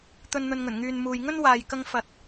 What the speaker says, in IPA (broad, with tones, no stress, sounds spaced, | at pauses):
t̪ ɵ˧ n n̪ ɵ˨ n ŋ ɵ˨˩ n ŋ yː˨ n m uː˨ j ŋ ɵ˥ n w aː˨ j k ɐ˧ ŋ f ɐ˨ t̚